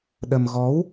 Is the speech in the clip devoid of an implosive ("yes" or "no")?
no